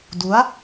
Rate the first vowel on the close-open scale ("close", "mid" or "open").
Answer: close